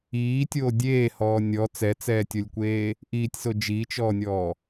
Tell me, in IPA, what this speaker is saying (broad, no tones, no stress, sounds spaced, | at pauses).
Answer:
iː tʲ oː dʲ eː h ɔː nʲ ɔ t͡s ɛ t͡s ɛː tʲ o lʲ kʷ eː | ʔ iː tʲ s o d͡ʒ i t͡ʃ ɔː nʲ ɔː